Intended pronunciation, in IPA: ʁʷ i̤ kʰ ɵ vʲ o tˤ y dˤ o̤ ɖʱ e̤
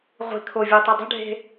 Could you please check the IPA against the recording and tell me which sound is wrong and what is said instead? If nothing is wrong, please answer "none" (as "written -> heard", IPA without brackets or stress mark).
ɵ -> o